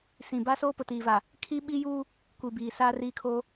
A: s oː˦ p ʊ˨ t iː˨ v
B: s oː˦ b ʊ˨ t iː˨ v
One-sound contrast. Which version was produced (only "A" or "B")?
A